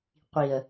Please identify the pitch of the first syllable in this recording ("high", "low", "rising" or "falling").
low